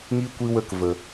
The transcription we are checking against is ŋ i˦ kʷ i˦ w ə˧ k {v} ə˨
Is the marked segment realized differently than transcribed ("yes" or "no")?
no